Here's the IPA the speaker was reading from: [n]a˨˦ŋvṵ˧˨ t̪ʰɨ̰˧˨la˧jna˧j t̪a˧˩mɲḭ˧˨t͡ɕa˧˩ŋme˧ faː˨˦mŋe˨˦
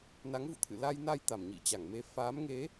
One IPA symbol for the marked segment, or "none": n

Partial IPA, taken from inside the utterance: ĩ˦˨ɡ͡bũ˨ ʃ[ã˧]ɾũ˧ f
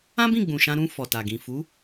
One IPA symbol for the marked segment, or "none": ã˧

